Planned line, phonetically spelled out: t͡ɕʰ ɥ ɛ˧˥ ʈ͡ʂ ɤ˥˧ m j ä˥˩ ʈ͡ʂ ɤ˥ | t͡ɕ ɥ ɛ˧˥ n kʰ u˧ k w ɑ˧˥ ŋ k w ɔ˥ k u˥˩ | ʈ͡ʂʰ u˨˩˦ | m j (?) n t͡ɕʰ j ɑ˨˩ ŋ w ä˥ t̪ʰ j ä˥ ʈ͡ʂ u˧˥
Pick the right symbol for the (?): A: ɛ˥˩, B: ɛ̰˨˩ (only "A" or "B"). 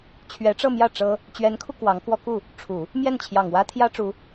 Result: A